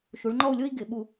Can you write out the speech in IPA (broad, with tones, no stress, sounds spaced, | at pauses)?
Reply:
ʃ u˩˧ ɭ ŋ͡ǃ ɔ˥˧ u̯ lʲ o˥ i̯ ɡ ɪ˩˧ ɓ u˧˩